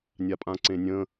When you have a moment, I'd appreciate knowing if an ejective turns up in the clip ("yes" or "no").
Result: yes